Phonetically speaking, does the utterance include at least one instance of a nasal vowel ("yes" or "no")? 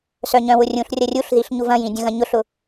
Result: yes